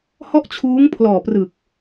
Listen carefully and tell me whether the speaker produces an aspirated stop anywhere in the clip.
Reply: yes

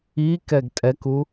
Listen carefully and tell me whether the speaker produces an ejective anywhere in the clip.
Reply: yes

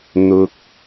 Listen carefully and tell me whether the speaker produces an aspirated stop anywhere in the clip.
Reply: no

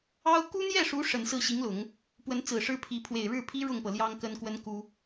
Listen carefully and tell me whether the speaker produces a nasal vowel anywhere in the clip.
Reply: no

